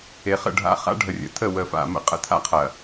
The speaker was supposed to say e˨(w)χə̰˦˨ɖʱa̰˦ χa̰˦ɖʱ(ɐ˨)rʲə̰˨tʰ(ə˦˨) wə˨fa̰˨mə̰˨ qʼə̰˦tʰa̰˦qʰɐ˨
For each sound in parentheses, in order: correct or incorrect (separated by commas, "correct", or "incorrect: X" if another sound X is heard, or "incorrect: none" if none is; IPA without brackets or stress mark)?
incorrect: none, incorrect: ə˨, correct